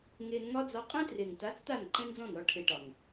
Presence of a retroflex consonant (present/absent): present